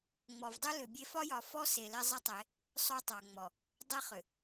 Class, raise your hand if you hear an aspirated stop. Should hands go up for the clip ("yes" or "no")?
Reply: no